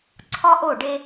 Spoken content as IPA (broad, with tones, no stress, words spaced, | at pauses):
ǀʰɒ˦ʔo˦˨ɖe˦